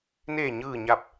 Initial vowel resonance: oral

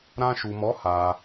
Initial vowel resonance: nasal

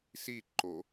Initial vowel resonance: oral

